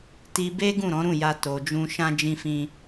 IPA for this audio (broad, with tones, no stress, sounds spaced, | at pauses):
t i˧ b e˦ ɡ ũ˦˨ ɾ ɔ̃˨˦ ɾ ũ˦˨ j a˧ t o˨ d͡ʒ ũ˧ ʃ ã˧ d͡ʒ ĩ˧ f ĩ˧